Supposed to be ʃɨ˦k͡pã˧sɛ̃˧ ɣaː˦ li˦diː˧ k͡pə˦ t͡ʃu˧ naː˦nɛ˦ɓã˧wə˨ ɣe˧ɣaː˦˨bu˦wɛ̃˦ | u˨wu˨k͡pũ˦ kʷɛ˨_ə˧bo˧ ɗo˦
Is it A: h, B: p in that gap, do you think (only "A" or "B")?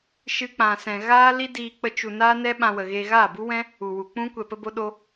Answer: B